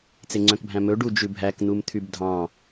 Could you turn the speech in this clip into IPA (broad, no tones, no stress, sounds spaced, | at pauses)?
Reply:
t͡s e ŋ͡ǀ œ̃ k bʱ æ̃ m ɵ ɖ u d͡ʒ ʉ bʱ æ k n̪ u m t̪ʰ y b dʱ ɑ̃